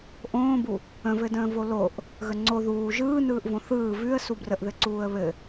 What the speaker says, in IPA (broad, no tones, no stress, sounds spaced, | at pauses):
ʔ õː b u | ə̃ v ɘ d ə̃ː v o l o ʔ | ɣ ə ŋ͡ǀ o ð uː ʒ ɯː n ɯː ʔ v õ θ ɯː v ʉ ə̯ s u b r ə ʔ ð ɘ ǀ uː ə̯ β ɘ